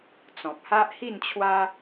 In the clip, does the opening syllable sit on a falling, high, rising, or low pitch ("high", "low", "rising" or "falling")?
low